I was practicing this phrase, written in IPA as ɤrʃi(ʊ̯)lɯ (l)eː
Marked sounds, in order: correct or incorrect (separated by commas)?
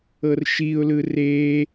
correct, incorrect